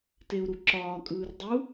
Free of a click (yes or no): no